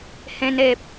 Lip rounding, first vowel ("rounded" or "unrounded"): unrounded